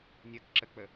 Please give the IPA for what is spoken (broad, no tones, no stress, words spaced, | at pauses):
nʲɘkǁək͡pə